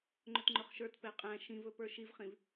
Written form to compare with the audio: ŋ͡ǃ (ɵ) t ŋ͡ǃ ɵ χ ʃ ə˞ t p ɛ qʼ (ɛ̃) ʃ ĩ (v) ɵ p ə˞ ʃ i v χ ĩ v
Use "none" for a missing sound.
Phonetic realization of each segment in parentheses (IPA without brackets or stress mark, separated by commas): ɵ, æ̃, v